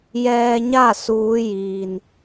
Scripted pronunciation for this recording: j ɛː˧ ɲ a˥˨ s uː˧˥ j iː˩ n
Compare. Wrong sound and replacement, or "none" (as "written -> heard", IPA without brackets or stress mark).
none